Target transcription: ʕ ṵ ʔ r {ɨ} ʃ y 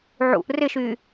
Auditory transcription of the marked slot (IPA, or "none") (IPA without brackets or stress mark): ɪ